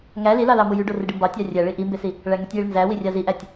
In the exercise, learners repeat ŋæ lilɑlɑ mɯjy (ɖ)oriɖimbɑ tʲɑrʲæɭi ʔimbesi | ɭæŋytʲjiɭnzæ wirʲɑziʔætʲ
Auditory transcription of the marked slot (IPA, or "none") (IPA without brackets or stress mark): ɖ